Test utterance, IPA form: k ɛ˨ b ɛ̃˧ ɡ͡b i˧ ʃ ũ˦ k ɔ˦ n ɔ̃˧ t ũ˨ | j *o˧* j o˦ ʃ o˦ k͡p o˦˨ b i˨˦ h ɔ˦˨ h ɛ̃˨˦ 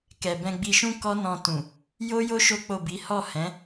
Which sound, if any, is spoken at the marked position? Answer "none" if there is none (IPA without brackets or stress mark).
o˦